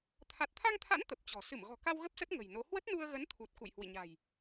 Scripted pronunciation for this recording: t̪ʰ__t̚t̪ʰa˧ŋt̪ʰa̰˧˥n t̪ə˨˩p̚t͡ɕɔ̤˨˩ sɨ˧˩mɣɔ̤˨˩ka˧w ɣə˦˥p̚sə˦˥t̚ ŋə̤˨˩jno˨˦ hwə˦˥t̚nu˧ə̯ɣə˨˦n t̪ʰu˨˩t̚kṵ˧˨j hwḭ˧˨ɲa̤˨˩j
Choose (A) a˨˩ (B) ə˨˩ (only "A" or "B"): A